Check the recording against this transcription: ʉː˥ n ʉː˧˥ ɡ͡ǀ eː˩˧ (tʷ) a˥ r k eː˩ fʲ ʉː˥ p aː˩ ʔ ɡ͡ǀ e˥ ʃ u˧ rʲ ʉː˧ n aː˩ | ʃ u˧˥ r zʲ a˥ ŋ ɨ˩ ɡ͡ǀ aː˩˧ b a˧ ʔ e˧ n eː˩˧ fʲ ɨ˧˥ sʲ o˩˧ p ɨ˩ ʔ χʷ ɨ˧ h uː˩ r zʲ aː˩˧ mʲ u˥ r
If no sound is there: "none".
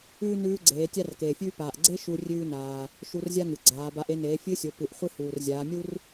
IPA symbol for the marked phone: tʲ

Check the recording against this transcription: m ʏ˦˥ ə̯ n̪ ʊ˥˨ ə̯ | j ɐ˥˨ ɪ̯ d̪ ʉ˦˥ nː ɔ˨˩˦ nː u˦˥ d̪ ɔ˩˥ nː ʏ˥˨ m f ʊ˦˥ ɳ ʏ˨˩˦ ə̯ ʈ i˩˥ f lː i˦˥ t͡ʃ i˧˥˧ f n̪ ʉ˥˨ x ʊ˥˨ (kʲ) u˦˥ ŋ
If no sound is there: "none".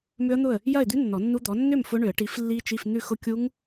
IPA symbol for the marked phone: kʲ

